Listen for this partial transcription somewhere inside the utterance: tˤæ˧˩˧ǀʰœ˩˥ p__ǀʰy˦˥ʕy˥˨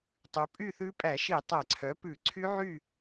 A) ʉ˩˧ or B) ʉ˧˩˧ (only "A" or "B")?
B